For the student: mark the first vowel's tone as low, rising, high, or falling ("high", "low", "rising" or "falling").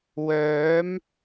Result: rising